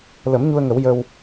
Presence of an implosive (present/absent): absent